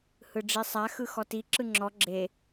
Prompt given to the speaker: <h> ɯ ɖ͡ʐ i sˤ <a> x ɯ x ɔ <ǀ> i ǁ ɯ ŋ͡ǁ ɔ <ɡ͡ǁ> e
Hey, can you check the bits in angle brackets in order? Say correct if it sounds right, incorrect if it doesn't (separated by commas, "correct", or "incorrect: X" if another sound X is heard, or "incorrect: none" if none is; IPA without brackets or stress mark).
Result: correct, correct, incorrect: t, correct